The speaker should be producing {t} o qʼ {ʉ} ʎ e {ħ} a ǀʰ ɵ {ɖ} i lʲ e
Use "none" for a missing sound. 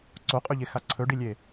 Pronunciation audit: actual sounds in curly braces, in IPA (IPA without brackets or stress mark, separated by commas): ǀ, ʉ, x, ɖ